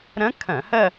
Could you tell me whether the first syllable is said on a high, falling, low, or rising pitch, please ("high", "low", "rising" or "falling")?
rising